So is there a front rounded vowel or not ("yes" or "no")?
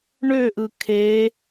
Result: yes